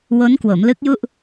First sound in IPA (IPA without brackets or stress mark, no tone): w